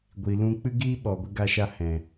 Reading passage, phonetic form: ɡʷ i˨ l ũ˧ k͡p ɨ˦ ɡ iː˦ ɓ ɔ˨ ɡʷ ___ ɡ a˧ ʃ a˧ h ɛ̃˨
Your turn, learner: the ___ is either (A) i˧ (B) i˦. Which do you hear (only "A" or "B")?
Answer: A